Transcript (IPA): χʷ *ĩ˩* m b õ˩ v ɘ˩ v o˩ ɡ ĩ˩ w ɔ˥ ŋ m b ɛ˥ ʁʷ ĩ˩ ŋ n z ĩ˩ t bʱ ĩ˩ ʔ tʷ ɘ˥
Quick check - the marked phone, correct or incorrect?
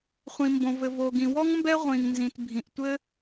correct